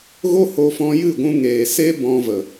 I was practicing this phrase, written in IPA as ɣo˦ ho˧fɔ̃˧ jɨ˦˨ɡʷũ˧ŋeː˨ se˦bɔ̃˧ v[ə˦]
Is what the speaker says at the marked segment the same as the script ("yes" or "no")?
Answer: no